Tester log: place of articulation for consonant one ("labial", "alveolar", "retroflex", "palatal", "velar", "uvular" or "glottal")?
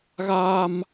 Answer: velar